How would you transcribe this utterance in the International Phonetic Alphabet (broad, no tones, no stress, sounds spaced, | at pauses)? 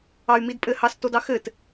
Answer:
ɑ y̯ m i d pʼ ɘ h ɑ s t o d ɑ x ɘ t